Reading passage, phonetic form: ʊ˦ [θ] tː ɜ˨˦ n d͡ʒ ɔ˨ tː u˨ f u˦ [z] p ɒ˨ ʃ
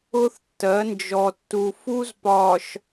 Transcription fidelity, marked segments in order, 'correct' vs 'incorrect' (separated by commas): correct, correct